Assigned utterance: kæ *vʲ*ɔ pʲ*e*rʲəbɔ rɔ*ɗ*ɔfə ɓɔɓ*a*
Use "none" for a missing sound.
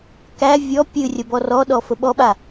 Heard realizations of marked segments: vʲ, ɨ, ɗ, a

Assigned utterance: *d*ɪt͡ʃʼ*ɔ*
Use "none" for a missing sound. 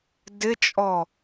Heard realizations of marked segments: d, ɔ

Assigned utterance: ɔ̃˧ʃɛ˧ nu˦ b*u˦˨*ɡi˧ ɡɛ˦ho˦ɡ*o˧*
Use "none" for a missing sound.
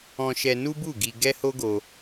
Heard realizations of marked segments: u˦˨, o˧

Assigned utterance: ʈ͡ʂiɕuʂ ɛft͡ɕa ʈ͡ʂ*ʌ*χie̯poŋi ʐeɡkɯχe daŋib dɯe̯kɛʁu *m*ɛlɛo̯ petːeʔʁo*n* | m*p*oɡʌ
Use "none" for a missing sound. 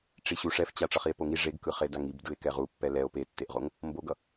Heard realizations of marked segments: ʌ, pː, ŋ, b

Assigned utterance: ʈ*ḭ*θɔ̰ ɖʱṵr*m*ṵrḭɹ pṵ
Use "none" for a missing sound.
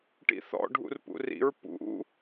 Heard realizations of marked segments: ḭ, p

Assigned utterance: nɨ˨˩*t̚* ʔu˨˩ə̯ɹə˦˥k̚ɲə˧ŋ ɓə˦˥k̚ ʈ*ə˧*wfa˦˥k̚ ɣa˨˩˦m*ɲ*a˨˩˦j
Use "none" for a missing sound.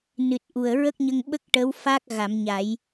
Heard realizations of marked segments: t̚, ə˧˥, ɲ

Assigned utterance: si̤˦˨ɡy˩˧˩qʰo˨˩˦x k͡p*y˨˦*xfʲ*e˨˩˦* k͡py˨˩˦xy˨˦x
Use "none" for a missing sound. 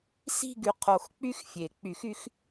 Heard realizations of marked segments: y˦˥, e˨˩˦

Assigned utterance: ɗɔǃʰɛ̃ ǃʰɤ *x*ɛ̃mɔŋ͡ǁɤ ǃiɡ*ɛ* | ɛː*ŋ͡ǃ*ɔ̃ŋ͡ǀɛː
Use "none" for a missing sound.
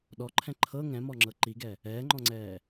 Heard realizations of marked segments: ŋ, ɛ, ŋ͡ǃ

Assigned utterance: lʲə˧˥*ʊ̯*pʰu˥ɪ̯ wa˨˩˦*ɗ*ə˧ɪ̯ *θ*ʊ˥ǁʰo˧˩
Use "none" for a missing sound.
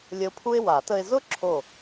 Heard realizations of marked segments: ʊ̯, t, z

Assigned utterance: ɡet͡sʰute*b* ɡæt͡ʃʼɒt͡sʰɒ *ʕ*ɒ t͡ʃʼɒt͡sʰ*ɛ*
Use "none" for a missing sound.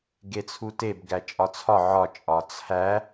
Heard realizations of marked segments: b, ʕ, æ

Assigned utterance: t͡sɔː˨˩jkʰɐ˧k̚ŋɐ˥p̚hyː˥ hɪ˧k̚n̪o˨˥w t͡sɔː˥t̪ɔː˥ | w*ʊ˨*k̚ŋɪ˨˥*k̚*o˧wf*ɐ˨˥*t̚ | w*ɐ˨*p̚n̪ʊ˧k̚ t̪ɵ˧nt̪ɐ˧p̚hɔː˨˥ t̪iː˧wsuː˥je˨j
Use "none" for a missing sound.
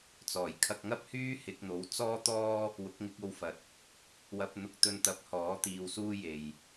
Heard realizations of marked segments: ʊ˨˥, k̚, ɐ˨˥, ɐ˧

